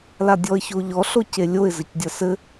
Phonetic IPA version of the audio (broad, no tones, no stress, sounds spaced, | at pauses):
l a dʲ ɔ ə̯ ç o ʎ ɔ ɬ o c e lʲ o ɪ̯ z ɘ c dʲ ɐ s ɘ